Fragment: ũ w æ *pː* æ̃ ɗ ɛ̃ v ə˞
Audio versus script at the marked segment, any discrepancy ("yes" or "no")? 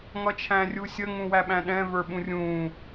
yes